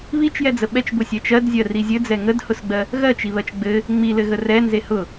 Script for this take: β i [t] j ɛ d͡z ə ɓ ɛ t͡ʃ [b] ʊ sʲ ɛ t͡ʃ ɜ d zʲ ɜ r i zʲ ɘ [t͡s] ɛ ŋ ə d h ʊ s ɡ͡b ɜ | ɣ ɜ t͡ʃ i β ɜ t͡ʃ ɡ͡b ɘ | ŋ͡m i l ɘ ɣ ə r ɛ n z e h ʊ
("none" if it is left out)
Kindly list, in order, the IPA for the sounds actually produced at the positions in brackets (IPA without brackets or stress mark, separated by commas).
t͡ʃ, b, d͡z